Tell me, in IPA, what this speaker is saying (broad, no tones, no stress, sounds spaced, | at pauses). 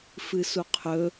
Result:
f ɨ s u qʰ ɵ